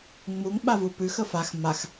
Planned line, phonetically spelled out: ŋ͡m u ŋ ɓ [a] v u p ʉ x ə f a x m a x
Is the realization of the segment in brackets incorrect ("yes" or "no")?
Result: no